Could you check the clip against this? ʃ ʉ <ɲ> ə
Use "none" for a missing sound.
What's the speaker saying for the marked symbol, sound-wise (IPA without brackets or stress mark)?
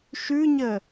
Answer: ɲ